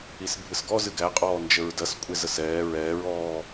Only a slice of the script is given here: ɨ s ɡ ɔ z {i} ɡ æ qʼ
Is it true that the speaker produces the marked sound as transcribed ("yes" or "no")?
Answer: no